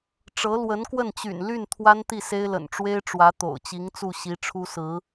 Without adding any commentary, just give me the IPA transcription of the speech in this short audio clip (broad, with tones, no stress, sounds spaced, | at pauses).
ʈ͡ʂ ɤ˧˥ l w ə˧˥ n k w ə˥˩ n t͡ɕ y̰˨˩ n l y˥˩ n t̪ʰ w a˥ n t̪ i˥˩ s e˥ ɪ̯ l ə̰˨˩ n ʈ͡ʂ w e˥ ɪ̯ ʈ͡ʂ w ä˧˥ t̪ o̰˨˩ ʊ̯ t͡ɕ i˧˥ ŋ t͡s u˥˩ ɕ i˧˥ ʈ͡ʂʰ u˥ s ɹ̩˧˥